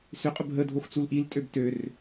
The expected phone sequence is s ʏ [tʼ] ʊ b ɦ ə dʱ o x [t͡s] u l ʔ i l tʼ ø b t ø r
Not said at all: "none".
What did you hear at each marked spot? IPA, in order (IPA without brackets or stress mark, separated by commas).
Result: qʼ, t͡s